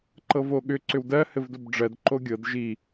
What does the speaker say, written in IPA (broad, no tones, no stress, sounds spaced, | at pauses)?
ǃ ɤ v o ɠ ʏ ǀ ʏ w d ɜ h ɘ v d o b ɖ͡ʐ ɜ d ǃ o ɡʲ ɤ d ʒ i